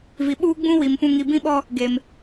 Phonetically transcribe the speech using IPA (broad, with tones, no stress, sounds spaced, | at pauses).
v i˨ ɓ uː˦ ɡ͡b ũ˦ w i˨ m p ũ˨ ŋ i˨ b ĩ˦ ɓ ɔ˦ | ɡ e˨ m